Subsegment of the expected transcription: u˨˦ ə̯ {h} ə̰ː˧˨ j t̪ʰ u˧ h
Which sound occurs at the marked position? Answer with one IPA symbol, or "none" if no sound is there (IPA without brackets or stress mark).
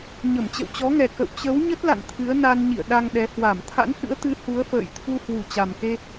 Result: f